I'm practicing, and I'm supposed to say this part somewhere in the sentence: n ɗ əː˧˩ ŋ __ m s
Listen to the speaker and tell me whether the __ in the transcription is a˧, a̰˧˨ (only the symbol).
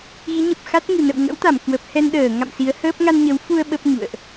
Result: a̰˧˨